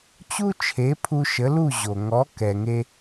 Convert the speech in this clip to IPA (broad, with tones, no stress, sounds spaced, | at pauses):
t͡ɕ u˥ t͡ʃʰ e˩˥ pʰ u˧ ʃ ə˩˥ l u˥˩ ʑ o˩ ŋ ɔ˩˥ k ɛ˩ ŋ e˧